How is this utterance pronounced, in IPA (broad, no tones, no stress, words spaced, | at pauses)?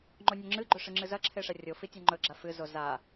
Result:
ŋ͡ǃonʲɵŋ͡ǁɨɡ͡ǃɵ ʂɨŋ͡ǁɨzɐǁʰe ʂɐrʲofi tʲaŋ͡ǃɵɡ͡ǁa fɨzo za